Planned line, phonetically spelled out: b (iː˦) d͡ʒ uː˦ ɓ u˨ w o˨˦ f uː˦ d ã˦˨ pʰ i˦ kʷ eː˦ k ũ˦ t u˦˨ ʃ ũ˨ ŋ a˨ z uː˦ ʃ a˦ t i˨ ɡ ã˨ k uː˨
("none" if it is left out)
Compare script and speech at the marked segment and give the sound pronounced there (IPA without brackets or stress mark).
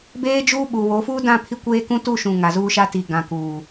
eː˦